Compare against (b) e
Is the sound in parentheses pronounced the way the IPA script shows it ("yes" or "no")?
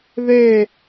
no